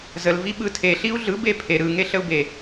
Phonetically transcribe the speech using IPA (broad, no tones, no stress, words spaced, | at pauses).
zəlvi ɓɯtʰeɬiu̯ ɮɯbe pʰe ɾɯŋe ɬəu̯be